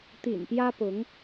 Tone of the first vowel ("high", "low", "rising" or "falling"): low